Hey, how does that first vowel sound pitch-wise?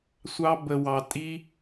high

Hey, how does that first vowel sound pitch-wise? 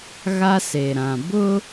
high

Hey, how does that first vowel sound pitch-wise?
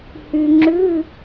low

